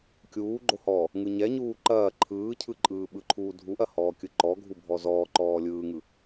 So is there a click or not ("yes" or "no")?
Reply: yes